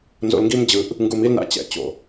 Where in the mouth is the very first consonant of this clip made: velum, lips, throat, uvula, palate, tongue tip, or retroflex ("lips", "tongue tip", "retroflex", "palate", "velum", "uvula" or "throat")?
tongue tip